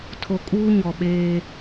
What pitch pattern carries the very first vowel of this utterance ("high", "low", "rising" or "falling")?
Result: low